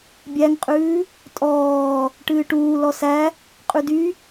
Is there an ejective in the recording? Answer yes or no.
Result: yes